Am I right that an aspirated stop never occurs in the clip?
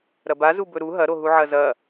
yes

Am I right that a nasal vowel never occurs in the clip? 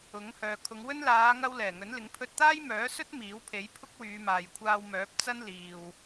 yes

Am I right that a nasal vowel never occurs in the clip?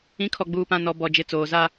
no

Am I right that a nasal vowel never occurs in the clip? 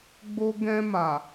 no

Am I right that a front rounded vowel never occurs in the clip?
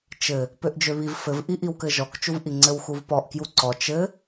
no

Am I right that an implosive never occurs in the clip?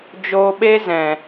no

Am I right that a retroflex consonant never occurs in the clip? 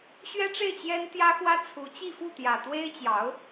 no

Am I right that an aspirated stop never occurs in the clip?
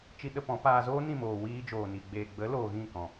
yes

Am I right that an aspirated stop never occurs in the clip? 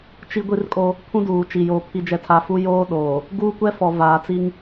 no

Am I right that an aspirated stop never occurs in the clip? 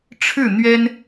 no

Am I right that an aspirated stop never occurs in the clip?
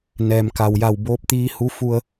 yes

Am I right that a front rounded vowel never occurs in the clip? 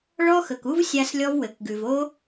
yes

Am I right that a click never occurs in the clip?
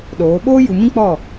yes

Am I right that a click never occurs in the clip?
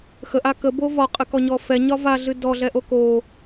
yes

